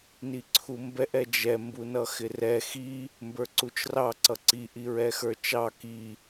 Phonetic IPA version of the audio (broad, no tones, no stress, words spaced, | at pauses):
niǀʰumbɛʔ ɛd͡ʒɛ mbunʌxɪrɛ xi | mbə˞ǀut͡ʃrɑ ǀʌǀi ʔiɹɛxə˞t͡ʃɑ ki